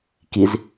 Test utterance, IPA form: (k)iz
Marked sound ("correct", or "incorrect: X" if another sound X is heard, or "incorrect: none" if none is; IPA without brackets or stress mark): correct